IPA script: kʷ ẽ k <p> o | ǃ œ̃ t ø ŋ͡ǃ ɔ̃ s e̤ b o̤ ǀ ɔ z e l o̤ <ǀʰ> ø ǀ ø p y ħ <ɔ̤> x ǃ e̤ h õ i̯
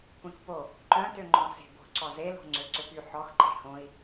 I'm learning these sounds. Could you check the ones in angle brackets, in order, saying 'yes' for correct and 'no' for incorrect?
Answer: yes, no, no

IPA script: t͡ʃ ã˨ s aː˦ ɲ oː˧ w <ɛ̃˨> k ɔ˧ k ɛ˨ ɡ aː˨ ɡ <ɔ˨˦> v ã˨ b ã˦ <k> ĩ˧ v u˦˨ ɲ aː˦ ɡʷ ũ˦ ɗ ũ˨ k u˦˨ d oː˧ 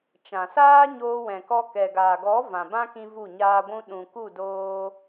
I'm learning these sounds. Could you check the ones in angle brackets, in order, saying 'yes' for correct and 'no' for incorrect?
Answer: yes, yes, yes

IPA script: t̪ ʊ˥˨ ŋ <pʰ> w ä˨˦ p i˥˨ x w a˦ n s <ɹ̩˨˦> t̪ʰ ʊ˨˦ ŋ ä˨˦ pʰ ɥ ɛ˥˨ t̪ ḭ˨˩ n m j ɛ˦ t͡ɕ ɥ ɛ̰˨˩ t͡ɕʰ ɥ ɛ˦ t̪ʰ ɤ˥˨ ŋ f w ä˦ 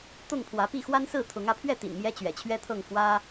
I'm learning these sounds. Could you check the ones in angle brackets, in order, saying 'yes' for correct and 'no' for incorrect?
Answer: yes, no

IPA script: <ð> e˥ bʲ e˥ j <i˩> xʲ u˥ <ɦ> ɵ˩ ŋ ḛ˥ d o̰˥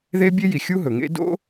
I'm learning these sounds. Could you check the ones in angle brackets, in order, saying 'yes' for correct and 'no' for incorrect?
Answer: yes, yes, yes

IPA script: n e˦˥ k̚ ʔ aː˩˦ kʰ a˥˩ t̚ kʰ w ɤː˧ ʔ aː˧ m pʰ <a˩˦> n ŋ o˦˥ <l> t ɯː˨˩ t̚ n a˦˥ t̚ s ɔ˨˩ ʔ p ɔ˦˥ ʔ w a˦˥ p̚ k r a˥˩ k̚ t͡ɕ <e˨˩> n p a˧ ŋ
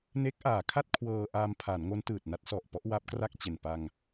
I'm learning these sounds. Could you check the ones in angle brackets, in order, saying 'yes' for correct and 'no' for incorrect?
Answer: yes, no, yes

